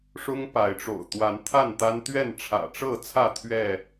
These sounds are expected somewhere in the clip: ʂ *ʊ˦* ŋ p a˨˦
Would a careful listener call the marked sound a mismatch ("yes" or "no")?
no